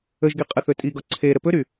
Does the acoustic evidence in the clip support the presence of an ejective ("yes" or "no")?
yes